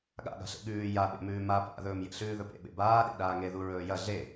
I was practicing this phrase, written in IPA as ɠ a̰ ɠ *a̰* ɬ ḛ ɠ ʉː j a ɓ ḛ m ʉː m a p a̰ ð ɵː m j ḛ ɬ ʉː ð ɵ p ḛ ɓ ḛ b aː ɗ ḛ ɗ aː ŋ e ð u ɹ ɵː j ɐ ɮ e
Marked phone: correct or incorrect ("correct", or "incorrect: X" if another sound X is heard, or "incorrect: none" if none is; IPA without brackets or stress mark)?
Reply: incorrect: a̤